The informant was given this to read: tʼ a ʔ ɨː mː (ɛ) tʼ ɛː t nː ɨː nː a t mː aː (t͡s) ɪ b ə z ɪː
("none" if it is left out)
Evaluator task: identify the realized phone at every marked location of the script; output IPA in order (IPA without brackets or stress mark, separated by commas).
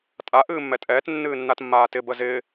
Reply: ɛ, t